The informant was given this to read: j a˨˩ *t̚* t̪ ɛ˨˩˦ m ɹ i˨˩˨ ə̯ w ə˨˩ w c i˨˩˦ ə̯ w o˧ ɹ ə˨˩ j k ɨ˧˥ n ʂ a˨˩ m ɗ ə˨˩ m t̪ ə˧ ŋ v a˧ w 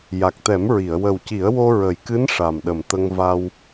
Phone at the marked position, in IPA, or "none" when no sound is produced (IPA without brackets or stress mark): k̚